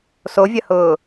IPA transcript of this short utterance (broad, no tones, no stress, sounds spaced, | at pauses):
s o vʲ ɐ h ʊː